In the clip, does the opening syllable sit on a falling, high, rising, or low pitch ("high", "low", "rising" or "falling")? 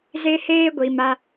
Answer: high